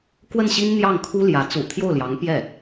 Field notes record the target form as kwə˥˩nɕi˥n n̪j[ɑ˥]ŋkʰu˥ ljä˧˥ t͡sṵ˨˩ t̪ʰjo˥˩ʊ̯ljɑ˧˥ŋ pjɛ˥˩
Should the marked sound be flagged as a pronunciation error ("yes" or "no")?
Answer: yes